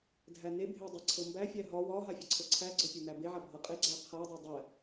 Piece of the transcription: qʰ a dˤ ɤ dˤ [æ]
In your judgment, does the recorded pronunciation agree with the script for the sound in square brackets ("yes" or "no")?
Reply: yes